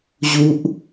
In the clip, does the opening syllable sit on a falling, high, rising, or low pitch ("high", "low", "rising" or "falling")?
low